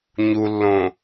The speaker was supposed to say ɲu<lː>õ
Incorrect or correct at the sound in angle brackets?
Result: correct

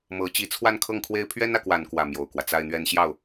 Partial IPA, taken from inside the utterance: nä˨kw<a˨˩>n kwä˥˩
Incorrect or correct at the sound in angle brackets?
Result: correct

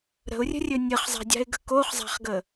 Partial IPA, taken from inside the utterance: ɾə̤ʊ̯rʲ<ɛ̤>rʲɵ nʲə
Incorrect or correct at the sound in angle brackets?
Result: incorrect: ə̤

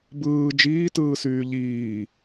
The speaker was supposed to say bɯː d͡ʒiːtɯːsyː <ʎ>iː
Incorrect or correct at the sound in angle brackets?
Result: correct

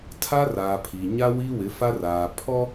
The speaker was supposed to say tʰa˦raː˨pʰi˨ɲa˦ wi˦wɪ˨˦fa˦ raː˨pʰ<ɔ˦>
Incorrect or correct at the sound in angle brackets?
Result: correct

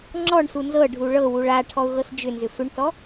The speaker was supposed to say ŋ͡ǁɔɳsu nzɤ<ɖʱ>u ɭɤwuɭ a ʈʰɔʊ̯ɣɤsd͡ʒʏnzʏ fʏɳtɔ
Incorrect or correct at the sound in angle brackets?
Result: correct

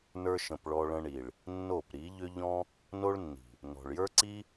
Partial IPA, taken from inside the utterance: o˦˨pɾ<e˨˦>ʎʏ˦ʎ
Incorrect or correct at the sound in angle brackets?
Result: incorrect: i˨˦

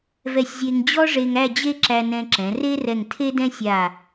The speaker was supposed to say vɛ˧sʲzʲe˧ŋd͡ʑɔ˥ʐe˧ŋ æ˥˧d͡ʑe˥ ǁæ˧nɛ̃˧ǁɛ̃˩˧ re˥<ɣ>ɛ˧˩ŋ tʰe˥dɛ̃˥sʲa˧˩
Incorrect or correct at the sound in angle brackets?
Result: incorrect: r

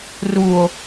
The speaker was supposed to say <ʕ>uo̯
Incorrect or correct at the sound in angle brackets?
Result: incorrect: r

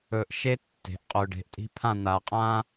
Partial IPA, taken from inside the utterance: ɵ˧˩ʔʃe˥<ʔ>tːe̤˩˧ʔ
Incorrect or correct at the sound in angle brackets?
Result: incorrect: none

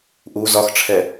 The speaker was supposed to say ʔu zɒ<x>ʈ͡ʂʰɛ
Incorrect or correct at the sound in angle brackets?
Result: correct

